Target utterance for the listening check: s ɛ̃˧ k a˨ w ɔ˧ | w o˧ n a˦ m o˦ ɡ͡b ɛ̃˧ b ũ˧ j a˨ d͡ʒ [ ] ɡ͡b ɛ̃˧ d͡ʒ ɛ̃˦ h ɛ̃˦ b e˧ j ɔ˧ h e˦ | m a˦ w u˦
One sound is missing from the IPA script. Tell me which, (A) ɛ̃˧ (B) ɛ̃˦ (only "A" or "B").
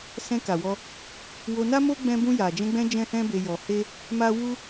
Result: A